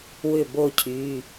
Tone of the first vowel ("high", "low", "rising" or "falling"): falling